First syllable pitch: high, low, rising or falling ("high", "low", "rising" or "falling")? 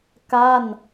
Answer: falling